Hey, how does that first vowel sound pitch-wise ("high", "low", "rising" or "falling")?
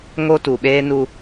high